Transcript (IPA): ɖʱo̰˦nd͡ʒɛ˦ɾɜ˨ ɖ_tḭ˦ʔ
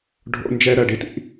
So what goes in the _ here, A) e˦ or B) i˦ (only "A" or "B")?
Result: B